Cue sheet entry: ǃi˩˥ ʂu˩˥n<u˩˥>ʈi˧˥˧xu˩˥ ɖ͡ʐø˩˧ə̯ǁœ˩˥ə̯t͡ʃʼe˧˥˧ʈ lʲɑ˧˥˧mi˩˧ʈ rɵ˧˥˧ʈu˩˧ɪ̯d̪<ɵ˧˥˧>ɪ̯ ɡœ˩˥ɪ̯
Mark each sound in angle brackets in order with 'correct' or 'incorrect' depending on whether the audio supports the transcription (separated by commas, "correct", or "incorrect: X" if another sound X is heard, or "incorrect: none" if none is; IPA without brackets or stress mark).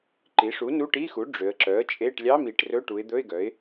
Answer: incorrect: u˧˥˧, correct